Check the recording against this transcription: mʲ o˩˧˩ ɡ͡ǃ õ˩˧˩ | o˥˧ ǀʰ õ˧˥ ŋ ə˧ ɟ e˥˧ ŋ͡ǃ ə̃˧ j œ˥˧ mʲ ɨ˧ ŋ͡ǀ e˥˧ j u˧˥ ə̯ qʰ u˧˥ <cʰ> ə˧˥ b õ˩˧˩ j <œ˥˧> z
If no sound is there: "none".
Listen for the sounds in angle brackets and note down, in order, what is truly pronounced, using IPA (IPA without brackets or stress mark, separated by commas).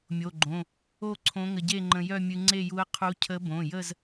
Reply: cʰ, ə˥˧